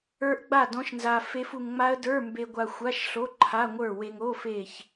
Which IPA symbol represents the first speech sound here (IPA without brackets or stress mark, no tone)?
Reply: ə˞